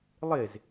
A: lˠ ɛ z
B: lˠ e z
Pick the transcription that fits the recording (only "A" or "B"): B